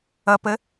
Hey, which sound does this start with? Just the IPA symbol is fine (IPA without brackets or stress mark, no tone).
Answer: ʌ